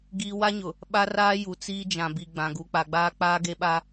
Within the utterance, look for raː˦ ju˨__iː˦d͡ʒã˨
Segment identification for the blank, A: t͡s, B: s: A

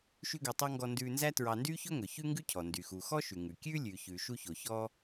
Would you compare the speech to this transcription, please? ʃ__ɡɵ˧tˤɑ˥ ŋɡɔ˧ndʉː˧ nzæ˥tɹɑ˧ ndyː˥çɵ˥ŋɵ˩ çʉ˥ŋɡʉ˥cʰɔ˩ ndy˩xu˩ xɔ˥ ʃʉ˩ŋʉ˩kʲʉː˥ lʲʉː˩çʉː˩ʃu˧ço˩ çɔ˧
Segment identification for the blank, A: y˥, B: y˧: A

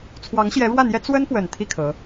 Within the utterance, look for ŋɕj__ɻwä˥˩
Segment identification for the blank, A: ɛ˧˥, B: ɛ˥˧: A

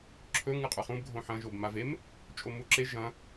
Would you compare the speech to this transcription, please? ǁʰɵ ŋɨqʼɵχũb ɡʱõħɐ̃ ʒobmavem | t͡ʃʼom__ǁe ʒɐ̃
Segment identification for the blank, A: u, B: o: A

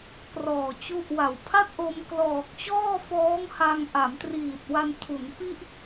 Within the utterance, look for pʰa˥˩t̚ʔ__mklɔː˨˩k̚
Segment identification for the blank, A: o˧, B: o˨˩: A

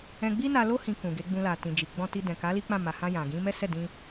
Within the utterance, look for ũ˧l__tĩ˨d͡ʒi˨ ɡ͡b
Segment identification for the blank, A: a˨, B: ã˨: A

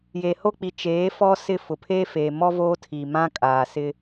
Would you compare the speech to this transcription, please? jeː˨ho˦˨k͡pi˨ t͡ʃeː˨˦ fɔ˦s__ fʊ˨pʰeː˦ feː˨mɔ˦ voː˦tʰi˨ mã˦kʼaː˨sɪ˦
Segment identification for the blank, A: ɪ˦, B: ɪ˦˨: B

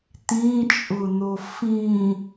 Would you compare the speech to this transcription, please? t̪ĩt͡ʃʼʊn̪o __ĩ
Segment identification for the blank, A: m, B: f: B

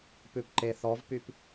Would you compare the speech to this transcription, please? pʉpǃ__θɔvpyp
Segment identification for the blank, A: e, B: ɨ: A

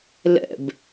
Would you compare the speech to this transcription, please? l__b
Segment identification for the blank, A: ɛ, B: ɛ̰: B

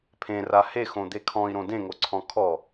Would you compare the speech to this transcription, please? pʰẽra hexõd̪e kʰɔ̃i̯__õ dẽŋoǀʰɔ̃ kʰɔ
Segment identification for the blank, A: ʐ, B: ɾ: B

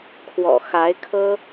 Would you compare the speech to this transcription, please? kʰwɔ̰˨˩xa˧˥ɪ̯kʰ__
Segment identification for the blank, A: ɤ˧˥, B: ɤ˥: B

